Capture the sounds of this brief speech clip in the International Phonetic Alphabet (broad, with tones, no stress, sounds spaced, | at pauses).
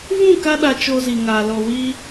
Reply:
v ũ˦˨ k a˧ ɗ a˨ t͡ʃ o˧ z i˨ ŋ aː˨ l ɔ˨ w i˧